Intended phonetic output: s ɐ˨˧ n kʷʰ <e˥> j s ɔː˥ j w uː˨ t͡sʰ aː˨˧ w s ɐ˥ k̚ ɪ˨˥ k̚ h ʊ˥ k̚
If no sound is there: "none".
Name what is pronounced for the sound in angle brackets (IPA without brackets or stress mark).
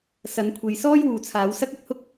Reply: e˨